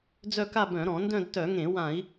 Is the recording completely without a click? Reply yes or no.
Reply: yes